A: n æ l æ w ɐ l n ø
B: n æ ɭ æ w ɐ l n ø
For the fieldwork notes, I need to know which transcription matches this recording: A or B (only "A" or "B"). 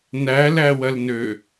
A